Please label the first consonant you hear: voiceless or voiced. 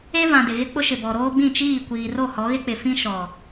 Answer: voiced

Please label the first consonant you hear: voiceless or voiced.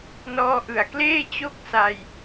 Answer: voiced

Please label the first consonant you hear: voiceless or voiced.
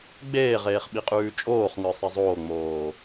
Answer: voiced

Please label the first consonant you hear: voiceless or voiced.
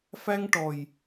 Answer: voiceless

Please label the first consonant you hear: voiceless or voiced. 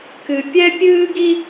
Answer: voiceless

